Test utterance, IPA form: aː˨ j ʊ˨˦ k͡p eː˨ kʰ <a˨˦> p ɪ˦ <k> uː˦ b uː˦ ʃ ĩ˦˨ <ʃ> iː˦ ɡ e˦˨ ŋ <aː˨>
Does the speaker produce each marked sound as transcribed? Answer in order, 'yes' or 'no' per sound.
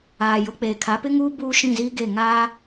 yes, no, no, no

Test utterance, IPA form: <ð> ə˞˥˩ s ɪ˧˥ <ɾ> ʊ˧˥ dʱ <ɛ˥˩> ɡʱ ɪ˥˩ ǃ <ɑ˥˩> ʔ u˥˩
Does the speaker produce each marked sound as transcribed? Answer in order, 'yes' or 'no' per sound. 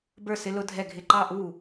no, no, yes, yes

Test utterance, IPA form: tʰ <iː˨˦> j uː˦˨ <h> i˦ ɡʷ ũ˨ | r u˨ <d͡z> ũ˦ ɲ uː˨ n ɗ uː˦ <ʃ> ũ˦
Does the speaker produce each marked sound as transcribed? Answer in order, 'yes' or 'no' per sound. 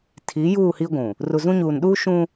yes, yes, no, yes

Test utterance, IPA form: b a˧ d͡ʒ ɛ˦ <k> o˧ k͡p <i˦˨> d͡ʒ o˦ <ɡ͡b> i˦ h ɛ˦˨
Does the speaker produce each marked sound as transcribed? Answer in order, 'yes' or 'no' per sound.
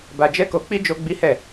yes, no, yes

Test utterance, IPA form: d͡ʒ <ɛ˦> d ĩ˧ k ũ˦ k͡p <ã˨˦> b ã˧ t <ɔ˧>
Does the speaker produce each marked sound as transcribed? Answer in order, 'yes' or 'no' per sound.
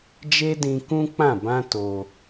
no, no, no

